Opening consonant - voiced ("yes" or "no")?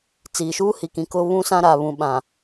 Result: no